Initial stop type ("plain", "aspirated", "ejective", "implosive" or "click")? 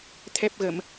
aspirated